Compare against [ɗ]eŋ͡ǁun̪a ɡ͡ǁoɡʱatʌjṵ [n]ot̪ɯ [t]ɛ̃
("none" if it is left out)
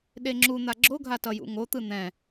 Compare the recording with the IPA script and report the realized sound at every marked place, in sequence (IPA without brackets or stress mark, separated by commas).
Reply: ɗ, ŋ, n̪